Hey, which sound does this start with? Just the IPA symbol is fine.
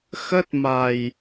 x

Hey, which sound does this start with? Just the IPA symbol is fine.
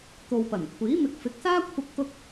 t̪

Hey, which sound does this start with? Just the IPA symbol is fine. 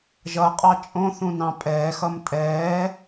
ʒ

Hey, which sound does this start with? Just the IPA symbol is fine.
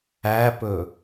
æ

